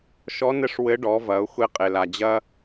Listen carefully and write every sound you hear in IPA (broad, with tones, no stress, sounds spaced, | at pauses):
ʃ ɔ˧˥ n ɘ˧˥ ʂ w ɘ˧˥ ɖ ɔ˩˧ v ɐ˩˧ ʊ̯ xʷ e˧ qʼ e˩ l a˩ d͡ʑ ɐ˥